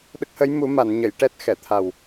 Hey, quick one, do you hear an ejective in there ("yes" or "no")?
no